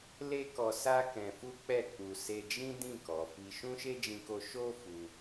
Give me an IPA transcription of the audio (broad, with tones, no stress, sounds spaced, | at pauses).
l e˦ k ɔ˧ s a˦ k ɛ̃˧ f u˦ k͡p ɛ˦˨ k͡p u˧ s e˧ d͡ʒ ĩ˦ d ĩ˦˨ k ɔ˨ f i˧ ʃ ũ˦ ʃ e˦ d͡ʒ ĩ˧ k o˧ ʃ o˦ f u˧